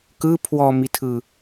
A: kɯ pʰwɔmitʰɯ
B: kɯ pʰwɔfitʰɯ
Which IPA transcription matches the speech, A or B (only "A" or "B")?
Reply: A